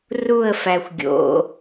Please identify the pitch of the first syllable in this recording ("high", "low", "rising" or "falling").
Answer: falling